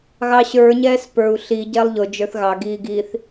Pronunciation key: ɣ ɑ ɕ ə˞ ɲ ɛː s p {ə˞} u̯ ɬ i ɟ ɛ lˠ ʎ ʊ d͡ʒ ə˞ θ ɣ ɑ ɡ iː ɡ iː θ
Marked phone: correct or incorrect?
correct